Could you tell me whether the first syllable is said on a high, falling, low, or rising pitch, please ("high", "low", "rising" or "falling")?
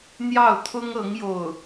falling